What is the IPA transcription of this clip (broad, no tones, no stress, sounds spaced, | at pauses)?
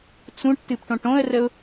t͡s ũ ʈ t ɨ p ʈ õ ʈ õ ə̯ r ə ʊ̯